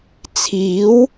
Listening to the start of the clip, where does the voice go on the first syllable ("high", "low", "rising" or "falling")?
rising